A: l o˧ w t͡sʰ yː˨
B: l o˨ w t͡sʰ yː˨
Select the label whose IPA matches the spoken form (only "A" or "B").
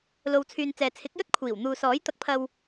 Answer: B